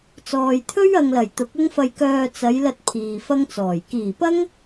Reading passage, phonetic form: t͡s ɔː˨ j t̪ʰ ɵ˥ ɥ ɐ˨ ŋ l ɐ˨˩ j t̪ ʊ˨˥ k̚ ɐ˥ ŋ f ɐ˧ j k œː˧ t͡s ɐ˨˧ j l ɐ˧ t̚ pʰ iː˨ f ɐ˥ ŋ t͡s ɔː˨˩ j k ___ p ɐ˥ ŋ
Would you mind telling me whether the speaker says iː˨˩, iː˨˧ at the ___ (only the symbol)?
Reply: iː˨˩